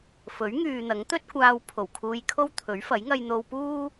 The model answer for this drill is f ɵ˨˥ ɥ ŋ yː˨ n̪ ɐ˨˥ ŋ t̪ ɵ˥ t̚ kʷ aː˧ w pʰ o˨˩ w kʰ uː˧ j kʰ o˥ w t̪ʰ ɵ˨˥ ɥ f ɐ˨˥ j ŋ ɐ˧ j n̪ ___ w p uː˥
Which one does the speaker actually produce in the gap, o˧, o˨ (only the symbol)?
o˧